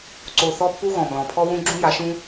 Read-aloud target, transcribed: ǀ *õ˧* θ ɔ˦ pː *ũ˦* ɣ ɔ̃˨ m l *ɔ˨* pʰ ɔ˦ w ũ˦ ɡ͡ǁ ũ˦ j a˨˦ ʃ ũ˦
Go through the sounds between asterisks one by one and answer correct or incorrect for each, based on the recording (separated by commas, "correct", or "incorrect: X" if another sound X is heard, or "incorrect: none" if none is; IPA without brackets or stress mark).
incorrect: o˧, incorrect: u˦, incorrect: ɔ̃˨